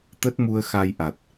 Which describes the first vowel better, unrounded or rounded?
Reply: unrounded